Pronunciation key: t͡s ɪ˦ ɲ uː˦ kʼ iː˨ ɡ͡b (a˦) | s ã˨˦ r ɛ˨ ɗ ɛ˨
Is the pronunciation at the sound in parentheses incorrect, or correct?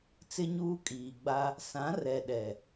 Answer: correct